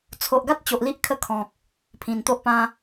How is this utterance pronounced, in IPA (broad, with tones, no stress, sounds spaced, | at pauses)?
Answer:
t͡sʰ o˨ ʔ ɡ a˦ t̚ t͡ɕ o˨ ʔ l i˦ ʔ kʰ ə˥˧ kʰ ɔ̃˨ k̚ | pʰ ĩ˨˩ n t̪ o˦ ʔ p ã˦